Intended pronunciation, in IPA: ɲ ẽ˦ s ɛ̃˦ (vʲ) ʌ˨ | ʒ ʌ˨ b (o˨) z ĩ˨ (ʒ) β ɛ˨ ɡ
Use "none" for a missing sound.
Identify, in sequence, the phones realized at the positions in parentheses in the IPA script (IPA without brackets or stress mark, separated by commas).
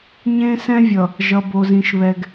vʲ, o˨, ʃ